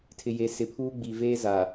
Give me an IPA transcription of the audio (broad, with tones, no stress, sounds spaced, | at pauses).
tʰ ɪ˨ j e˨ s ɪ˨ pʰ uː˦ ɡ͡b i˨ v eː˦ z a˨